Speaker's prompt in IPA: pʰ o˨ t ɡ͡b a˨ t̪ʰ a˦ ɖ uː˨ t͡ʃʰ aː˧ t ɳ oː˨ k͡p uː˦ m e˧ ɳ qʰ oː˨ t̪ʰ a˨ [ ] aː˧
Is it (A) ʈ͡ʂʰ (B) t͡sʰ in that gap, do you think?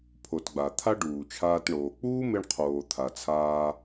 B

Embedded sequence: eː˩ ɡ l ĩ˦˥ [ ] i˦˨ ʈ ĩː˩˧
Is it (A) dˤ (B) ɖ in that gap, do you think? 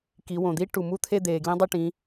A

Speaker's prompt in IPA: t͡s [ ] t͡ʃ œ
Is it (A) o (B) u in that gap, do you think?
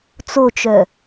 A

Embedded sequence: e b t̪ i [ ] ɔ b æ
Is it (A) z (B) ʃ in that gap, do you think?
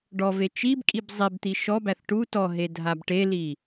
B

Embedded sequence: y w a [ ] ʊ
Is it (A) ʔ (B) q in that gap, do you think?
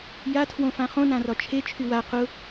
B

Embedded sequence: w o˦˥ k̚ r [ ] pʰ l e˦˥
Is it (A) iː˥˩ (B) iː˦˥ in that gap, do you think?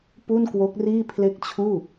A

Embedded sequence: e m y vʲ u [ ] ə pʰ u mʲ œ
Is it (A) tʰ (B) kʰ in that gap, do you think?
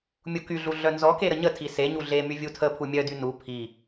A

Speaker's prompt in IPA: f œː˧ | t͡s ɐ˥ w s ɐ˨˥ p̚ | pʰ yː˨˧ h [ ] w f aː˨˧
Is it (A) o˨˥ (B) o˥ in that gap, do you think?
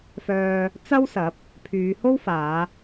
B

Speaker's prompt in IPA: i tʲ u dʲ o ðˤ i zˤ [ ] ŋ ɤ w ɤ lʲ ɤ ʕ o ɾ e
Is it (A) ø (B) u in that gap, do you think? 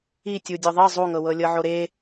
B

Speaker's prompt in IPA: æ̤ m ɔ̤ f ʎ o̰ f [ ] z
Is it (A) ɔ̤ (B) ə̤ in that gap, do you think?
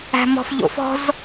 A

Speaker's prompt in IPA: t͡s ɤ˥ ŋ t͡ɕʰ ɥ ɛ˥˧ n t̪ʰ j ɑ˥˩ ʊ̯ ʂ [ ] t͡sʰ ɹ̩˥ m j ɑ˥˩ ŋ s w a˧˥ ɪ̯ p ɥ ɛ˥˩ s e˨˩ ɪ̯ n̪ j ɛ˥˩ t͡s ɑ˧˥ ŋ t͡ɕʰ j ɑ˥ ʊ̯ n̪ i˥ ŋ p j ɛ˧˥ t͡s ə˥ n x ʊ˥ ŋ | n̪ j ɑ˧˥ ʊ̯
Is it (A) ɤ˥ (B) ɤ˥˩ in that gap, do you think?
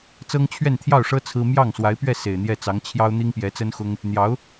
A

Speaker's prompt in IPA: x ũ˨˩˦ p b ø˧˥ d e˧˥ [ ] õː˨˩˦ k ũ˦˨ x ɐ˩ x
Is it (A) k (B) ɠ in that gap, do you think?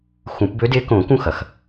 A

